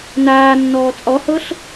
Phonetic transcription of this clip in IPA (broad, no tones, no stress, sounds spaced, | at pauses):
n aː nː ɔː t͡sʼ ɔ h ɤ ɬ